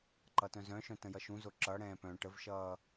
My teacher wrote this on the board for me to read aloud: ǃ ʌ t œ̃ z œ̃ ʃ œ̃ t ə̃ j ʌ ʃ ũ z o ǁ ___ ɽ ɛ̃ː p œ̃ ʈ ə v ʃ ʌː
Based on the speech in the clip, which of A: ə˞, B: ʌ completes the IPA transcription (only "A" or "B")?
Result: B